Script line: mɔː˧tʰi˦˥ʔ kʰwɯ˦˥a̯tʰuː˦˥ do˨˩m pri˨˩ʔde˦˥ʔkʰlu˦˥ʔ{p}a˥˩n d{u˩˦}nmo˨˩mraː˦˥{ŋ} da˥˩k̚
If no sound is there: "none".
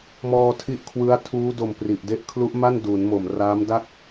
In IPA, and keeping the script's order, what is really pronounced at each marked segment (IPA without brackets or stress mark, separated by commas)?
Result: m, u˩˦, m